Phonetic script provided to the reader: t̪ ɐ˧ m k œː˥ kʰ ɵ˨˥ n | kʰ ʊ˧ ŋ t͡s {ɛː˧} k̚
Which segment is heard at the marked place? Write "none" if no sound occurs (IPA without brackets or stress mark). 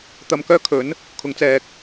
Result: ɛː˧